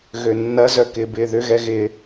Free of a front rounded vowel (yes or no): no